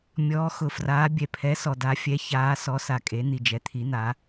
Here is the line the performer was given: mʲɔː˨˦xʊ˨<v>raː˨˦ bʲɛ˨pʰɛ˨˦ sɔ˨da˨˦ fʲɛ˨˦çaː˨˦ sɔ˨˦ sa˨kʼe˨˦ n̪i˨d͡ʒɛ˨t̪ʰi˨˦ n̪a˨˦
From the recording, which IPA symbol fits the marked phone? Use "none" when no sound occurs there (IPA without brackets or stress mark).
f